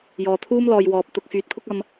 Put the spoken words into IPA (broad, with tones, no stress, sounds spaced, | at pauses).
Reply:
j ɔː˨ t̪ʰ uː˥ m l ɔː˨ j w ɔː˨ p̚ t̪ ʊ˧ k̚ f yː˨˥ t̚ pʰ ʊ˥ k̚ ɐ˧ m